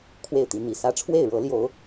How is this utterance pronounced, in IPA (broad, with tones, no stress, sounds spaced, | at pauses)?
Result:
kʰ w e˥˨ ɪ̯ t̪ i˨˦ n̪ i˨˩ s ä˦ ʈ͡ʂʰ w e˥˨ ɪ̯ ɻ ɤ˨˦ l j o˨˦ ʊ̯